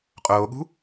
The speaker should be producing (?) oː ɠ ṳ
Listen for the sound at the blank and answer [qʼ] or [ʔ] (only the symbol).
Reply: qʼ